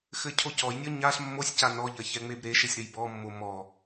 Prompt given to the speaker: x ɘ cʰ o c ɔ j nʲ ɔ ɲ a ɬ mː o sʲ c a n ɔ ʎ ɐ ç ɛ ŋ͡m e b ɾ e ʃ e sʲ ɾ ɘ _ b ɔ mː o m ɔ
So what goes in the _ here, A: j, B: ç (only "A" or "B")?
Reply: A